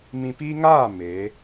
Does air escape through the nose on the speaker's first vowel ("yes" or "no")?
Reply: yes